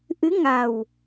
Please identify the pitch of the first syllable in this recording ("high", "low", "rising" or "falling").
rising